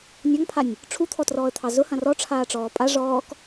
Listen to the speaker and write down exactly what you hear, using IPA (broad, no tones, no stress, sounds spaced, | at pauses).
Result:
nʲ ɑ ŋ pʰ a nʲ | ʈ͡ʂʰ u t̪ʰ ɔ t r ɔː ə̯ t̪ʰ ɑ z ʊ h ɐ̃ r ɔ ʈ͡ʂʰ aː ʈ͡ʂ ɔː pʼ a ʐ ɔː k